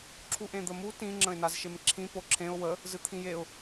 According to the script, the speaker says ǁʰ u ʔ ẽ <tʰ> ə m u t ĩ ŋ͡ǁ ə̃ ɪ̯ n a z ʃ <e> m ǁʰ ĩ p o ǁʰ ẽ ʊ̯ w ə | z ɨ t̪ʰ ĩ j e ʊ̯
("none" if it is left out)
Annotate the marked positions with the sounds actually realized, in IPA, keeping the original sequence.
d̪, e

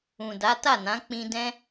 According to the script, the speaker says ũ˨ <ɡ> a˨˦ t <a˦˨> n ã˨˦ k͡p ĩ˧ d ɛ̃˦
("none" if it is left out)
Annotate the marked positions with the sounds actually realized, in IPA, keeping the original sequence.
d, a˦˨

